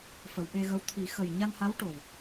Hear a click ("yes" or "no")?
no